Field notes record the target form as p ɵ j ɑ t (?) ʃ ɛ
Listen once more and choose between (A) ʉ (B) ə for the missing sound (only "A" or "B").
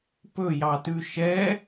A